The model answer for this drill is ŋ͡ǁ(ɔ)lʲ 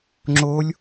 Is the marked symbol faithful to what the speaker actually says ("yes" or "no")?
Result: no